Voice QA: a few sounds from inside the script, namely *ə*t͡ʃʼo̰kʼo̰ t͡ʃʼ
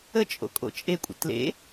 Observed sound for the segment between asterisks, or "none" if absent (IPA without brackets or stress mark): ə